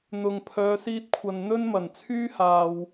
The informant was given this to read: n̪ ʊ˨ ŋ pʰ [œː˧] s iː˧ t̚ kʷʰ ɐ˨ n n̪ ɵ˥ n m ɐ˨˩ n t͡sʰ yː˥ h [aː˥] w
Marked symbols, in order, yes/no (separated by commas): no, no